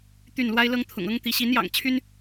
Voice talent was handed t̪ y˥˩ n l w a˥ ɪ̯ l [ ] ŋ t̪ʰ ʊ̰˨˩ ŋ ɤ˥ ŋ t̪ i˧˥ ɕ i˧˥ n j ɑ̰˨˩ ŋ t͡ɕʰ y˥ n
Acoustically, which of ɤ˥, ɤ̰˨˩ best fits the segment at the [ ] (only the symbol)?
ɤ˥